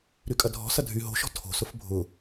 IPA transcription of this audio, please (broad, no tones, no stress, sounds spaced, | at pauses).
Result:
ɾ y kʼ ɐ dʱ ɔ̤ s ɐ dʱ y ɦ o̤ ʃ ɔ̤ tʰ o̤ s ʊ f bʱ ʊ